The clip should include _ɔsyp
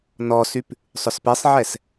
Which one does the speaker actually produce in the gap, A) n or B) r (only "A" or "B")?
A